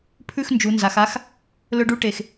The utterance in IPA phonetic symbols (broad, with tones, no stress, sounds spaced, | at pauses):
pʰ ʉ˥˧ x n d͡ʒ u˩˧ n z a˩˧ x a˦˥ x | l ɵ˦˥ ɖ u˦˥ ʈ e˨˩ x